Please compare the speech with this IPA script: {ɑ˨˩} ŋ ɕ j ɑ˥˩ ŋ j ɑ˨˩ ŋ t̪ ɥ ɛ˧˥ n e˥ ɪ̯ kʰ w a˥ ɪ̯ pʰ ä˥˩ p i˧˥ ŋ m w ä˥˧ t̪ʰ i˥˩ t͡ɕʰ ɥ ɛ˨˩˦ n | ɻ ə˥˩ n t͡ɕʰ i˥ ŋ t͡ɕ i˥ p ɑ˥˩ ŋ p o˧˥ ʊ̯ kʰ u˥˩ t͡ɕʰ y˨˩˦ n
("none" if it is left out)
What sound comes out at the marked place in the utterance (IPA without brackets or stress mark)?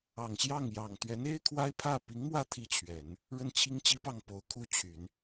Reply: ɑ˨˩